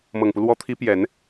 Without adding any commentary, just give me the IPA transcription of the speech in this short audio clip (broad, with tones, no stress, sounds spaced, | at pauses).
m ɤ˨˩ ŋ p u˦ l w ɔ˧˥ t̪ʰ i˧˥ p j ɛ˨˩˦ n